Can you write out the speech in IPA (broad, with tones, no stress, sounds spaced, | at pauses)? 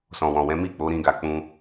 s ɔ̃˨ w ɔ̃˨ w ɛ̃˨˦ m i˦˨ k͡p o˨˦ ɾ ĩ˧ ɡ a˨ k͡p ũ˧